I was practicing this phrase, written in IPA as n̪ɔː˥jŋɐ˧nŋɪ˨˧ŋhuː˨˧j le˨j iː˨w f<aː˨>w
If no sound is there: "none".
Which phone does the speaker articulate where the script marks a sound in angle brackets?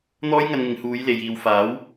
aː˨˥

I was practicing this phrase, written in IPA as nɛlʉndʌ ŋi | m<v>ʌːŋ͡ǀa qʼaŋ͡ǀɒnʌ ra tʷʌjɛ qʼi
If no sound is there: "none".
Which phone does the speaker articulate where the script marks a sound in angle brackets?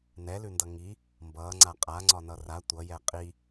b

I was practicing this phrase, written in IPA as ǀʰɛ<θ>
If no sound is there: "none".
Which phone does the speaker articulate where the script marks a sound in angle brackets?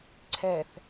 θ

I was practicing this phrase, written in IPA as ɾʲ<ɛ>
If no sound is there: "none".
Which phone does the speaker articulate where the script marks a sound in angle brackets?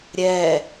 ɛ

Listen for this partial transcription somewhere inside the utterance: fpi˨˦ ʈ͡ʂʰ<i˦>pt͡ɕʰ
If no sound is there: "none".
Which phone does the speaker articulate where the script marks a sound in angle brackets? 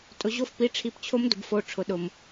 i˨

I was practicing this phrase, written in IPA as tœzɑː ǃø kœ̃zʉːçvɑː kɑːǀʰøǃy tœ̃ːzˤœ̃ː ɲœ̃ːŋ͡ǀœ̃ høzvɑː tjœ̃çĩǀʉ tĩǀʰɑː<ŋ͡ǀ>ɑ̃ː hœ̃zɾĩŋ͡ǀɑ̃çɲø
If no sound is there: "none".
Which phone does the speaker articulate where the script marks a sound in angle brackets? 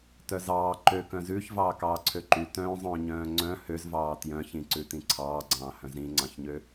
ɡ͡ǀ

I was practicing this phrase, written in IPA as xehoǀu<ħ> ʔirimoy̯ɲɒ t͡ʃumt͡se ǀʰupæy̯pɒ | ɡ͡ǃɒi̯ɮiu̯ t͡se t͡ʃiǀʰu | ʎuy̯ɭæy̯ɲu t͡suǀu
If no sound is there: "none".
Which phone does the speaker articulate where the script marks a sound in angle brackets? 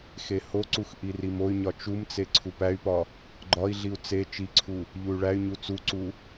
x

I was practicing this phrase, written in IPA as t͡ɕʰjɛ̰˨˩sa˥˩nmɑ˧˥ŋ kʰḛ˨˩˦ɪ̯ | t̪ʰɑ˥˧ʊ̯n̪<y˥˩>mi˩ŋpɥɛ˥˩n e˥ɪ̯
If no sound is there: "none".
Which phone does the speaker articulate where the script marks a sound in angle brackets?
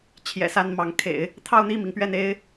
i˥˩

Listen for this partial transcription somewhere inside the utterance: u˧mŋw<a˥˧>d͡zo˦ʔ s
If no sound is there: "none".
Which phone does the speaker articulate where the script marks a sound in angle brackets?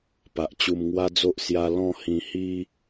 a˦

